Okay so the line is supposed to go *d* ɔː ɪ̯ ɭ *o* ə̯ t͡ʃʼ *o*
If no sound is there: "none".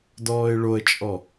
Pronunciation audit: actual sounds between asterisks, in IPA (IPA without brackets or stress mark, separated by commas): d, o, ɔ